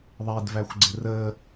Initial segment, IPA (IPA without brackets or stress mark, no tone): ðˤ